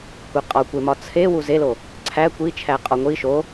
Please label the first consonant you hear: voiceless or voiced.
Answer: voiceless